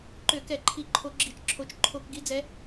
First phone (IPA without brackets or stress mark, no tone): ǃ